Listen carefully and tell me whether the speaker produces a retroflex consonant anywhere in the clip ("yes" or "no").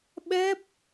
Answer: no